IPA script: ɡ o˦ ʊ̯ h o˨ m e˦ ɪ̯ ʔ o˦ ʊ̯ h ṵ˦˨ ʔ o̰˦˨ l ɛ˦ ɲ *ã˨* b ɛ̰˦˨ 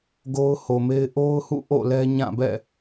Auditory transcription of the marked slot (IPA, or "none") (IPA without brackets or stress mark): ã˦˨